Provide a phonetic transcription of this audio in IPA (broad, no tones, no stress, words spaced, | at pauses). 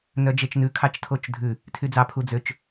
nœd͡ʒet͡ʃnʉ kʰɑt͡ʃtʰot͡ʃdʱʉ | tʰyd͡zɑ pʰud͡zøt͡ʃ